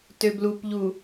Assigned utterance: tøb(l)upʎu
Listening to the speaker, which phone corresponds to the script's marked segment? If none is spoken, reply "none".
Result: l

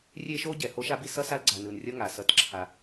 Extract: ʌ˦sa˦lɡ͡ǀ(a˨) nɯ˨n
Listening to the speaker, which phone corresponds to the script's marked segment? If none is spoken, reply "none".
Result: a˨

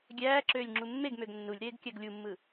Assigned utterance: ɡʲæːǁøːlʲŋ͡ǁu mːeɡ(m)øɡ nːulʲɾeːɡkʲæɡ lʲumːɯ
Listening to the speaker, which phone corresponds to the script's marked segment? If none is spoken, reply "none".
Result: m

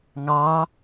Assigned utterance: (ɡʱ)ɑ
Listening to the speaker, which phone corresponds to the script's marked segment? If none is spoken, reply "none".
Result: ŋ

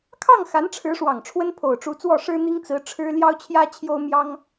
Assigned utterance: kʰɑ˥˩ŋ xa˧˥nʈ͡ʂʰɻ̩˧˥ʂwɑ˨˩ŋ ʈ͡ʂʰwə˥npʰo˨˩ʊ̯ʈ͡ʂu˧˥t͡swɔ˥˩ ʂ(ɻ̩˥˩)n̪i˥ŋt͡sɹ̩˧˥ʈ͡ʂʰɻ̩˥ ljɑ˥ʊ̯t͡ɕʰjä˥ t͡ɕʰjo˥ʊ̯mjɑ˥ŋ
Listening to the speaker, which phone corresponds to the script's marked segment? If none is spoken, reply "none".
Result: ɻ̩˥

